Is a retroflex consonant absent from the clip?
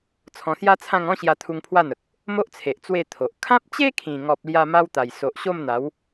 yes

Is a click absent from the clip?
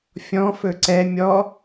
no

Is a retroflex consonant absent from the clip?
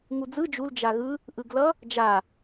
yes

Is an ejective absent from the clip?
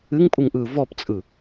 no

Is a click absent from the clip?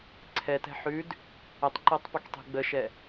no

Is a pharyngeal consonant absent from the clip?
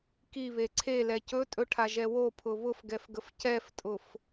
yes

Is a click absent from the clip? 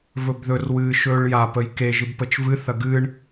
yes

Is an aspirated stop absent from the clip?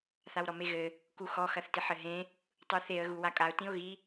yes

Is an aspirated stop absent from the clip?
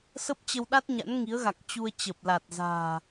yes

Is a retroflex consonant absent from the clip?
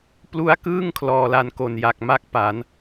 yes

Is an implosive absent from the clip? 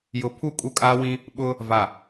no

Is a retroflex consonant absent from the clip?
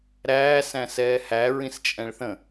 no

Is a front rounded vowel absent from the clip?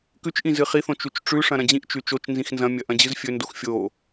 yes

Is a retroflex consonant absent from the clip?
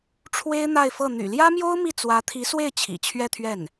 no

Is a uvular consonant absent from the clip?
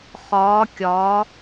no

